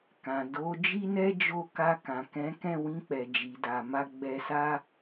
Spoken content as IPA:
k ã˨ d o˨˦ d͡ʒ i˦ n ɛ˦ d͡ʒ o˦˨ k a˧ k ã˨ k ɛ̃˨˦ k ɛ̃˦˨ w ĩ˧ k͡p ɛ˨ d͡ʒ i˨ d a˨ m a˧ ɡ͡b ɛ˧ s a˦

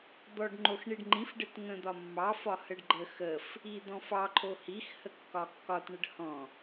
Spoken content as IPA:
d̪ ɔ ɖ ŋ͡ǃ o x ɳ i ɖ ŋ͡ǃ ĩ f ɖ ɘ t ŋ ə̃ d̪ ɒ mː ɑ f ɒ h ə ɖ ɡ͡ǃ ə x ə f | i d̪ ɔ̃ f ɑ ǃʰ o h i x h ə kː ɒ kː ɒ t ɳ ə ɖ h ɔ̃

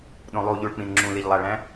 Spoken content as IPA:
ɗ õ lˠ u ʎ u ɭ k͡p ĩ n ŋ͡ǁ ũ l i ʎ lˠ æ ɭ æ̃

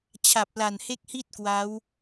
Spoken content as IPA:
t͡ɕʰ a˨˩ p̚ l a˨˩ n h e˦˥ k̚ h i˥˩ t̚ k w a˦˥ w

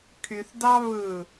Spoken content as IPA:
kʰ y θ d ɑ β ɯ

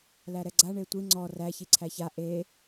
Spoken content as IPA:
l æ ɾ ɛ ɡ͡ǀ a ɳ e tʷ i ŋ͡ǀ ɔ r æ ç i ǀʰ æ ç a ʔ e

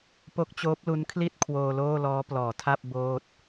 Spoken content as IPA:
p o˦˥ k̚ t͡ɕ oː˦˥ p̚ l u˦˥ n kʰ l i˥˩ t̚ kʰ w oː˧ l oː˥˩ l ɔː˦˥ p l ɔː˩˦ tʰ a˥˩ p̚ b oː˥˩ t̚

